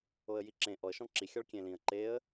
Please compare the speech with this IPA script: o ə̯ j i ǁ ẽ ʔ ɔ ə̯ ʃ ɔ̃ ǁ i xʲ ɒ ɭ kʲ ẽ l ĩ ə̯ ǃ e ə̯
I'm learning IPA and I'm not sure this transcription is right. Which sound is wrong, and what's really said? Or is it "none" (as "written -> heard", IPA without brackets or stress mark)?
none